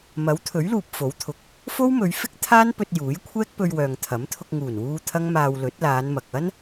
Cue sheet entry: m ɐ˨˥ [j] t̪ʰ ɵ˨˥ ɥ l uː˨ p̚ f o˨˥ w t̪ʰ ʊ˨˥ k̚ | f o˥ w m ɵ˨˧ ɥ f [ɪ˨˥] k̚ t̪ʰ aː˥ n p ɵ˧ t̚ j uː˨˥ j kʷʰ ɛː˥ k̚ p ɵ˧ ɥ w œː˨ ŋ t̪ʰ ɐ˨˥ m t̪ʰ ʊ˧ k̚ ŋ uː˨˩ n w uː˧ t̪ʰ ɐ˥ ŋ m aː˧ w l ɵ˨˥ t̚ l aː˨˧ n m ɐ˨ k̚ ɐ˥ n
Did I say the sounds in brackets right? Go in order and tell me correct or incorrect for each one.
incorrect, incorrect

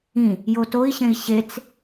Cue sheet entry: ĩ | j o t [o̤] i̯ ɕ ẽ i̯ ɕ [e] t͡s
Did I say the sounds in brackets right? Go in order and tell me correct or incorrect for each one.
incorrect, correct

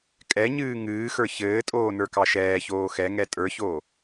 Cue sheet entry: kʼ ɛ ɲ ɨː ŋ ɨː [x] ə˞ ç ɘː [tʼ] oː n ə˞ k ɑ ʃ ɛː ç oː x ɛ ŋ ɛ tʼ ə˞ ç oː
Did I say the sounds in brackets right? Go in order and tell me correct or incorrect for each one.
correct, correct

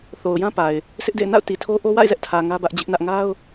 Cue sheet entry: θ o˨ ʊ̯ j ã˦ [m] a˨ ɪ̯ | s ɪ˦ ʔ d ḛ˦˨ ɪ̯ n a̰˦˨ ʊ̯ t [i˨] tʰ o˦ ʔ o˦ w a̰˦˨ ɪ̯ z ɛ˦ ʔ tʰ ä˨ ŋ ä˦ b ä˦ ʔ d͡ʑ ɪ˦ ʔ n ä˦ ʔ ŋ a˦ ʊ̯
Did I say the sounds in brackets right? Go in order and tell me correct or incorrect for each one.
incorrect, correct

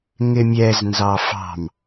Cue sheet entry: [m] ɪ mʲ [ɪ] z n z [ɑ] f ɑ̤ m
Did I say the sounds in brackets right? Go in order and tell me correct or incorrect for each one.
incorrect, incorrect, correct

